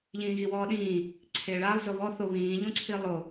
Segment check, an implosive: present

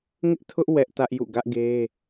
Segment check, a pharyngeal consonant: absent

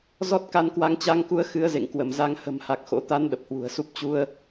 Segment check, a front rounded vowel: absent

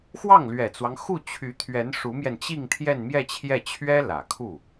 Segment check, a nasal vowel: absent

